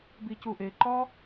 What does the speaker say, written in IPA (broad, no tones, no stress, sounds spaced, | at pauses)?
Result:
b i c u ʔ e ǃ ɒ